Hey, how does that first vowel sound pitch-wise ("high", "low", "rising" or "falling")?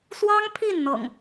high